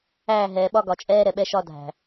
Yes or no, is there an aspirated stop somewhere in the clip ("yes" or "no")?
no